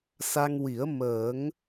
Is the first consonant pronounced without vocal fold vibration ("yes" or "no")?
yes